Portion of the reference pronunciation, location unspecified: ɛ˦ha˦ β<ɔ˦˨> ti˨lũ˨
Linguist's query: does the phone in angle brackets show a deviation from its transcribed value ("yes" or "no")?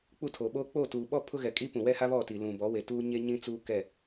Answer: no